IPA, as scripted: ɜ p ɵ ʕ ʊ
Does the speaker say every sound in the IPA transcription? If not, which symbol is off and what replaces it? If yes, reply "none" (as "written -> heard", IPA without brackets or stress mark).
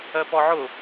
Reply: ɵ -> ɔ